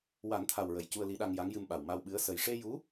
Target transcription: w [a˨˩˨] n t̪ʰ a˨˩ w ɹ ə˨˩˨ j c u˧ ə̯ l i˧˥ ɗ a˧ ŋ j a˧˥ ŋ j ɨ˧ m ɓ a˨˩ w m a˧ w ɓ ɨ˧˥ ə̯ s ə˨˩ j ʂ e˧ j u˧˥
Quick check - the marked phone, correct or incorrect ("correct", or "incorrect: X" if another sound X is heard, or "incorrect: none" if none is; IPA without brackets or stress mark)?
incorrect: a˨˩˦